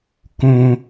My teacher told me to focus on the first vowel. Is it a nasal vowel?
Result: yes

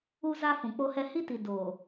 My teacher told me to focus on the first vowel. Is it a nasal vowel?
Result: no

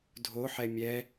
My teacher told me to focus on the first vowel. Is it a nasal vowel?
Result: no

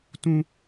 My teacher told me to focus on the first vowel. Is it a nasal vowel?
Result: yes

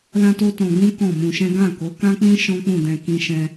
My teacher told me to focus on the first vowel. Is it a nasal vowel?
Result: yes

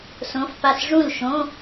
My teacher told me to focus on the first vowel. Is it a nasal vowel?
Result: yes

